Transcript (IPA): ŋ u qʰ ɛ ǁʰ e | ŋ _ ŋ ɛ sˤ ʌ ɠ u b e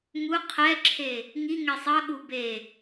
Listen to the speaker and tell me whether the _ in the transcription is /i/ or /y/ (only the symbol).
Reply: i